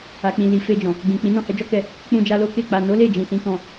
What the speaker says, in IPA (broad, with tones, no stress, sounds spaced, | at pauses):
a˨ k͡p ĩ˨ l i˨ f e˧ d͡ʒ ɔ̃˨ | ɡ͡b ĩ˨ k͡p ĩ˨˦ n ɔ̃˦˨ h ɛ˨˦ d͡ʒ ɔ˦ k ɛ˧ | k͡p ũ˧ d͡ʒ a˧ l o˦ k e˦˨ k͡p a˨ n o˨˦ l e˦˨ d͡ʒ ĩ˨ s ĩ˨˦ k ɔ̃˧